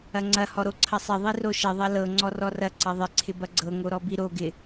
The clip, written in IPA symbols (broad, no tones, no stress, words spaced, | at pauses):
ɐŋ͡ǀɐ hɔɾoǀʰɐsˤɪ ðˤiroʃɪ ðˤɐlɤ ŋ͡ǀɔrɔrɐ ǀɐðˤɪ ǀʰɪbɐɡ͡ǀɤ ŋoɾɔbiɾo ɡɪ